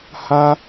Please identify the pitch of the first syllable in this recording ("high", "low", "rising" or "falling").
high